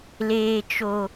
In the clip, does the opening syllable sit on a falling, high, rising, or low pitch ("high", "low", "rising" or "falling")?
high